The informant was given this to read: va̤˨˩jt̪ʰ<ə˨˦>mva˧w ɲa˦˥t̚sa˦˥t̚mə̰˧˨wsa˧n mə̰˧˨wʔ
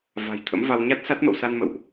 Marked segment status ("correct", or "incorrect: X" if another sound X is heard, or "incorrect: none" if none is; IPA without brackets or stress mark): incorrect: ə̰˧˥